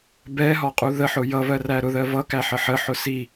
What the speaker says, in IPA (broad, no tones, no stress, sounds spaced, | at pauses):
b ɛ ɦ ɒ qʼ u ð ə ħ ʊ j ʌ v ɜ r æ ɾ ʊ ð ɜ v ʌ k æ ħ ə ħ ə ħ ʊ s i